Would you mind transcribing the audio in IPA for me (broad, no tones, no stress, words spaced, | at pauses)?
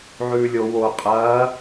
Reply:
ʕʉːlʲo wo qʼɐː